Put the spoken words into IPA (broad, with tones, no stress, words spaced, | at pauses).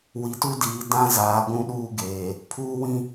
wi˨tu˦diː˨ dã˦ zaː˨˦ɡʷũ˦ɗuː˦ɡeː˨ | pʰuː˦wĩ˦